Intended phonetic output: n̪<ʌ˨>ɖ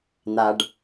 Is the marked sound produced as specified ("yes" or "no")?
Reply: no